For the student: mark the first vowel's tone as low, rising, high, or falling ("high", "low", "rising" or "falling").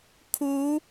rising